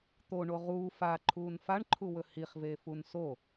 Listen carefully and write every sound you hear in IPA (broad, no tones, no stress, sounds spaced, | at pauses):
t̪ o ɳ o ʁ uː f a ǃʰ uː n f a ɳ ǃʰ u w ɵ h i χ v eː f u n s o